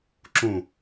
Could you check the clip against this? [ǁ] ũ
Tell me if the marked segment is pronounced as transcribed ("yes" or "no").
yes